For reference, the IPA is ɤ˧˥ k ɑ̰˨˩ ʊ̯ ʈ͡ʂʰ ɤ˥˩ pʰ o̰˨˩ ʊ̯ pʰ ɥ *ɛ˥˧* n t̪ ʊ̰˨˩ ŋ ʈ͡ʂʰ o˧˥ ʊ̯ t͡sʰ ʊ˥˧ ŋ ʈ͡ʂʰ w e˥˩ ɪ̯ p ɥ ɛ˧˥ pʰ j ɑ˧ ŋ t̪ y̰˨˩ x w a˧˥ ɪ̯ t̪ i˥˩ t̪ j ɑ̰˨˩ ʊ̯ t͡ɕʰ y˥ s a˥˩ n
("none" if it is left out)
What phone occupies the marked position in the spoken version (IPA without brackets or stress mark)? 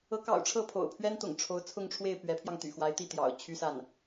ɛ˥